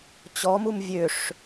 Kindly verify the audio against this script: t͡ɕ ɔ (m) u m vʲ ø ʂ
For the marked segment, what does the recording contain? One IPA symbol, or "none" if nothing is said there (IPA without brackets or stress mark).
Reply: m